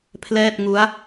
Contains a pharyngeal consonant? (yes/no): no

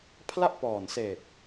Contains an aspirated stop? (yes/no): yes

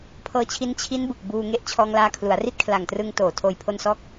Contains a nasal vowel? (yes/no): no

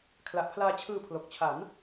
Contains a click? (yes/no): no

